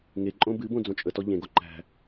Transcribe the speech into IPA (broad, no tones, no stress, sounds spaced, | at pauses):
ŋ e ǃʼ õ b ɨ b õ d͡z õ t͡ʃʼ ə t ɔ ʎ ẽ ɡ o ǃ æ̤